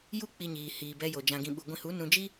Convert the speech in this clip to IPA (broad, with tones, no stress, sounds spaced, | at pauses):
j u˦ k͡p i˧ ɲ iː˨ h iː˨ b ɛ˧ j o˨ d͡ʒ ã˧ ɡ ĩ˧ ɓ u˧ ɡʷ ĩ˧ h u˨˦ n ũ˧ d͡ʒ i˦